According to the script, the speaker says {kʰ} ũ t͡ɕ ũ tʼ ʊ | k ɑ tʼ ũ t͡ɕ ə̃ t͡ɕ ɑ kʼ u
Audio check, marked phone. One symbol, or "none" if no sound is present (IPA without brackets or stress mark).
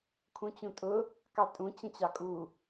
kʰ